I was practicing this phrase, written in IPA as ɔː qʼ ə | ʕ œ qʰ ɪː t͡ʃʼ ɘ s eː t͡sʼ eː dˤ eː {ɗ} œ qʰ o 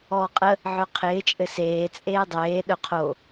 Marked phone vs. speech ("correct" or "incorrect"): correct